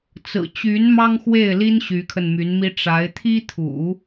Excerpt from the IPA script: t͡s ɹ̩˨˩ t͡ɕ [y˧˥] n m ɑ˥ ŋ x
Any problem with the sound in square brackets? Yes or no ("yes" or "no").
no